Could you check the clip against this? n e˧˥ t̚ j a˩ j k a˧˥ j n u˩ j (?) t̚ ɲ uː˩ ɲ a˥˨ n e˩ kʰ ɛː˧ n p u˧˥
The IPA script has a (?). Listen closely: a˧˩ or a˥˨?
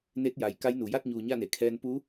a˥˨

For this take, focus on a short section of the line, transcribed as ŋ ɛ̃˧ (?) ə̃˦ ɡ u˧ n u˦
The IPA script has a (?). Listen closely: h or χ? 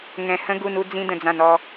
h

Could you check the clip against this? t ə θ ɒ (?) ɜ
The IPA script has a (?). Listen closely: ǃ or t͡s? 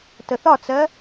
t͡s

